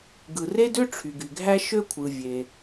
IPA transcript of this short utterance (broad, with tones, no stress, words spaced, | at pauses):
ɡɯ˩re˥dø˥ ʈ͡ʂʰy˩ɡy˩ɡʱæ˥ ʃø˥kʷʰɯ˩ vʲe˩